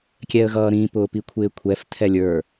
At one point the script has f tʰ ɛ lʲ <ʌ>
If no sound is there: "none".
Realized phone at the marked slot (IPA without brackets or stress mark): ə˞